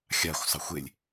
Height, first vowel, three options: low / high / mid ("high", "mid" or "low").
low